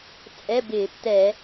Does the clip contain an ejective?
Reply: yes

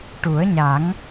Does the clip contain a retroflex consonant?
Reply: yes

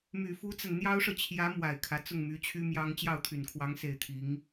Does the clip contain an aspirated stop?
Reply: yes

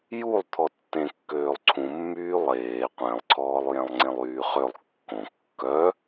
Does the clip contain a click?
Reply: yes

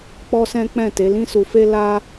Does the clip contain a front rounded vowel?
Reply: no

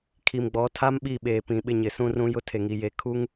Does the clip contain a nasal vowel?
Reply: yes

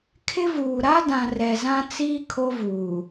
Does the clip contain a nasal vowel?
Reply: yes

